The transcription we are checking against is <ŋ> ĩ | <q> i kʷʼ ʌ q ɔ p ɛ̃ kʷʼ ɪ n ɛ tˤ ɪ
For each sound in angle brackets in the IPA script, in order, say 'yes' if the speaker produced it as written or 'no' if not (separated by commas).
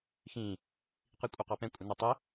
no, yes